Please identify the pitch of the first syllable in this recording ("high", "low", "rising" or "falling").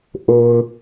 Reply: low